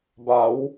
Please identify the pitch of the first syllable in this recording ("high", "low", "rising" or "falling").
rising